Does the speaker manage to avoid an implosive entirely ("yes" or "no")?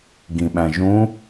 no